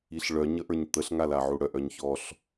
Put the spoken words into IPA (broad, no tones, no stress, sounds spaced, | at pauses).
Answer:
i ɬ ɭ œ ɲ ə ʔ ə˞ ɲ t̪ ə ɬ ŋ a l a ʕ u ɽ œ ʔ œ ɲ ç ɔ ɬ